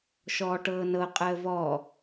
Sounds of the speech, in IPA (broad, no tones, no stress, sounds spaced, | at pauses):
ʃ ɔː ʈ ɤː n ɤ qʼ əː v ɔ